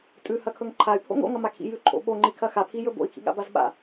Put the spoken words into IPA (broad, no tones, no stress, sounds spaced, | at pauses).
tʼ ʉ h ɐ kʰ ɵ ŋ ǃʰ a y̯ pʰ o̰ ŋ o̰ ŋ ɐ m a kʰ ḭ j ʉ ǃʰ o̰ ɓ o ŋ͡ǃ i kʰ ɐ x a pʰ i j ɵ b o̰ i̯ kʰ ḭ ɠ a̰ b a z ɓ a̰